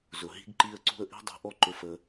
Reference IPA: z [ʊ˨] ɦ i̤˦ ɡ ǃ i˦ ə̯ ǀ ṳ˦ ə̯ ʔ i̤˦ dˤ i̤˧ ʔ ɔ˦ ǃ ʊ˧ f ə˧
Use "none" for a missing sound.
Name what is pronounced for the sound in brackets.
ʊ˨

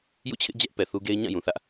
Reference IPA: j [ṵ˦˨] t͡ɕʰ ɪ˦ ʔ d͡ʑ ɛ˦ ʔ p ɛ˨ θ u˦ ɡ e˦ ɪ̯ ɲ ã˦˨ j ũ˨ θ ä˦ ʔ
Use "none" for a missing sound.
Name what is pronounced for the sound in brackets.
ṵ˦˨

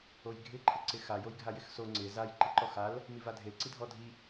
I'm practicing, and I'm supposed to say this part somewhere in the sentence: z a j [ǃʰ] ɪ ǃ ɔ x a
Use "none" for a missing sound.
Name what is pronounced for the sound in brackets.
ǃ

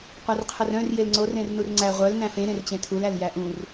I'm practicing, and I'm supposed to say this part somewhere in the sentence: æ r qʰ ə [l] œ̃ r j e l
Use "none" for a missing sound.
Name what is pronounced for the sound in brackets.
r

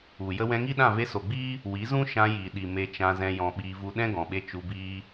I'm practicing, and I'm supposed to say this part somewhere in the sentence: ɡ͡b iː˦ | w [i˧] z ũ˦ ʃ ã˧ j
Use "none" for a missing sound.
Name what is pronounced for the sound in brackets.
i˨˦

